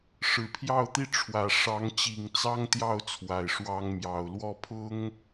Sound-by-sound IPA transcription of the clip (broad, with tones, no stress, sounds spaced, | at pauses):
ʂ ɻ̩˨˩ pʰ j ɑ˥˧ ʊ̯ t̪ i˥˩ ʈ͡ʂʰ w ä˨˩ ʂ ɑ˧˥ ŋ t͡ɕ i˨˩ ŋ t͡s ɑ˥ ŋ t̪ j ɑ˥˩ ʊ̯ t͡sʰ w a˨˩ ɪ̯ ʂ w ɑ˥ ŋ m j ɑ˨˩ ʊ̯ l w ɔ˥˩ pʰ ʊ˥ ŋ